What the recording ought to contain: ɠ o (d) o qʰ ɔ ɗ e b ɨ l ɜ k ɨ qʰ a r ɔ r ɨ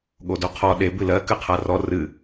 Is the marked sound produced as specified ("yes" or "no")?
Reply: yes